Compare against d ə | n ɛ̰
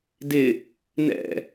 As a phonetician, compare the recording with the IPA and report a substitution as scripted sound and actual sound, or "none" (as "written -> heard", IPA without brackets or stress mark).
ə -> ɪ